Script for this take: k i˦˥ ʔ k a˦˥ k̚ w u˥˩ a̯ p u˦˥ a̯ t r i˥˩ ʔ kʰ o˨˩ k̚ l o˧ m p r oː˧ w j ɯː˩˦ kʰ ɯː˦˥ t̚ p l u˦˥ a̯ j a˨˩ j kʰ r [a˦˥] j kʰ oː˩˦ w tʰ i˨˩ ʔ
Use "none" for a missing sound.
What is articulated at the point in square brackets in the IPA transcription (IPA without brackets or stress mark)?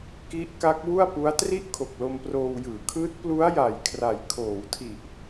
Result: a˨˩